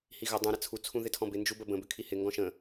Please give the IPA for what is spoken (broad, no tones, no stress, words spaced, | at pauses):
hiɣə dˤũ ɾət͡sʰu t͡sʰũðɪtʰɔ̃bɪ nd͡ʒubəbə̃ bʏkʰihɪ ŋɡɔ̃ʃə̃